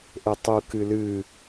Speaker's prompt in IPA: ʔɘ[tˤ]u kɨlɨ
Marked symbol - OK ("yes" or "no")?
yes